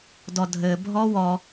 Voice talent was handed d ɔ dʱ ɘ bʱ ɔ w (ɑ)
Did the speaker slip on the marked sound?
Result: yes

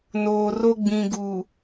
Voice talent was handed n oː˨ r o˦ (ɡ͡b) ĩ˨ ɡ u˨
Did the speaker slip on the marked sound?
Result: no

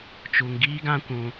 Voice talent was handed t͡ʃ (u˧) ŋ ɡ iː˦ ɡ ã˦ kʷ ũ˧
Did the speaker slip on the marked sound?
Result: no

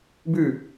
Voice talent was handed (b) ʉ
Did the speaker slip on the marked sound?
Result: no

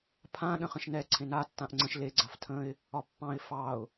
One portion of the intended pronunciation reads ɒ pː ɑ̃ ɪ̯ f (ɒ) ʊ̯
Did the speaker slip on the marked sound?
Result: yes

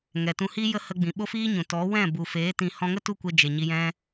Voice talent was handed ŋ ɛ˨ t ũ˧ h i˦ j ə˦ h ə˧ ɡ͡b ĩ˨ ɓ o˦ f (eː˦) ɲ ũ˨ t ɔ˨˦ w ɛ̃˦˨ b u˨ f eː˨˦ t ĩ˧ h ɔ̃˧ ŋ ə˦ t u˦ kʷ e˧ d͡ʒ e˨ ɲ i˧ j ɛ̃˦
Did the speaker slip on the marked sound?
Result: yes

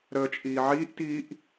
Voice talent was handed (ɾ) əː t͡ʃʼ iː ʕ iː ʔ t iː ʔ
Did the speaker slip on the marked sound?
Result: no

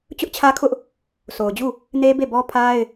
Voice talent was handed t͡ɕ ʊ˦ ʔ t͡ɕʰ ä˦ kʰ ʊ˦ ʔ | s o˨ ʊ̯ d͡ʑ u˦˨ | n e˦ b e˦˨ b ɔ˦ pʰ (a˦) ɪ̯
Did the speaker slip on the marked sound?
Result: no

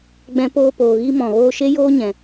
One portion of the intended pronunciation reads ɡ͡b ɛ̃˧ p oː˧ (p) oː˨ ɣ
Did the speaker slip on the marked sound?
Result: no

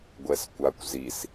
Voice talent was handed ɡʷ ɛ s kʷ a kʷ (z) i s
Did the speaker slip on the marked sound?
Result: no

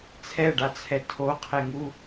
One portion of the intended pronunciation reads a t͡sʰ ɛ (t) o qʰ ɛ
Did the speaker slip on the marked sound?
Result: yes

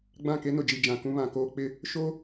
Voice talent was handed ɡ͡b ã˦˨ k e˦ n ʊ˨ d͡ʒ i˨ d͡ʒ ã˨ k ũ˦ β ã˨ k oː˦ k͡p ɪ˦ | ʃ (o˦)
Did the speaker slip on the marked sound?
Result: no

